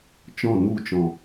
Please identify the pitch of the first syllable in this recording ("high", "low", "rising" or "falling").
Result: falling